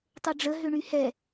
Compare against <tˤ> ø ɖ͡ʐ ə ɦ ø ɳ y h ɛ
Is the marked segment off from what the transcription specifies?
no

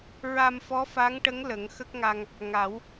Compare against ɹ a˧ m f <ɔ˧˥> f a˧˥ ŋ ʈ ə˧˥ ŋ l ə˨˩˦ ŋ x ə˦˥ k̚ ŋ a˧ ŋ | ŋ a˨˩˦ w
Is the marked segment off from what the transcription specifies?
no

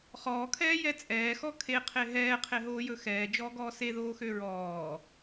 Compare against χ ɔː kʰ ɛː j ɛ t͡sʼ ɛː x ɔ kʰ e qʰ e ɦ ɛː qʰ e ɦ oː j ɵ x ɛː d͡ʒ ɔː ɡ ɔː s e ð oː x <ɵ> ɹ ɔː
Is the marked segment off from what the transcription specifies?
yes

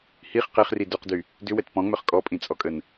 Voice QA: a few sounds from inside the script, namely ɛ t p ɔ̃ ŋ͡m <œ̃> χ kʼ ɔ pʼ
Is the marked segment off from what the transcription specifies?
yes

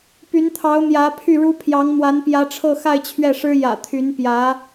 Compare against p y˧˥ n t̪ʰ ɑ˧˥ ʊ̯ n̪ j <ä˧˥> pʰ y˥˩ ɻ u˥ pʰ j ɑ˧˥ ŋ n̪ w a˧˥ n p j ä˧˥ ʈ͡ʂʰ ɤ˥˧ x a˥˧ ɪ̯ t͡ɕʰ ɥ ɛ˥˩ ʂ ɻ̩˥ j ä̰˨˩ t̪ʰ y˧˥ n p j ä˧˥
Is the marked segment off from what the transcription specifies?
no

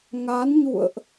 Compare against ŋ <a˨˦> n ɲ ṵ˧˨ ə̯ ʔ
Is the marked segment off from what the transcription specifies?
no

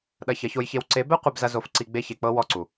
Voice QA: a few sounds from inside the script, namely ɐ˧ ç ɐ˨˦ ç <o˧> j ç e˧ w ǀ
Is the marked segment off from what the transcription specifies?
no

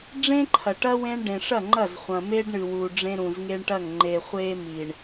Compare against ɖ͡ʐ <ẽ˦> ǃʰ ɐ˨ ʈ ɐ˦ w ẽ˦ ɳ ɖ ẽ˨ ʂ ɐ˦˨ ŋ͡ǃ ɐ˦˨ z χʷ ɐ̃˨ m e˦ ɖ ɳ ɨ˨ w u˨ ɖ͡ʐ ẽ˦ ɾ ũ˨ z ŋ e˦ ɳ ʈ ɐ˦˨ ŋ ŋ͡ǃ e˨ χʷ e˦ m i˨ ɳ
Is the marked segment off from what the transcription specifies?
no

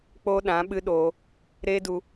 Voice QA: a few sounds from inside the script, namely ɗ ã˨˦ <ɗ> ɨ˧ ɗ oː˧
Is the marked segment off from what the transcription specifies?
yes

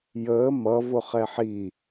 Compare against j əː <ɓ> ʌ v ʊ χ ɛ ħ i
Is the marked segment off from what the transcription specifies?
yes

